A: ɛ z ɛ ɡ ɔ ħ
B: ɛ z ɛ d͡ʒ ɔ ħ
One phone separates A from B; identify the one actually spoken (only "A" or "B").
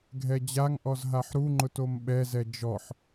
B